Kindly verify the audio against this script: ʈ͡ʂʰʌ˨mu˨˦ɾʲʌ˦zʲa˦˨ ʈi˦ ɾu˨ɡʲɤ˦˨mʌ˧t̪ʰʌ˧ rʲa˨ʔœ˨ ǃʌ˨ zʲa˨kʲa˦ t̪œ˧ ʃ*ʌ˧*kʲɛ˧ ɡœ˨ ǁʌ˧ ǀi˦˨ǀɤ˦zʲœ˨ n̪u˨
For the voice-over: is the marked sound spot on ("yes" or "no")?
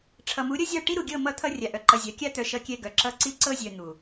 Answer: yes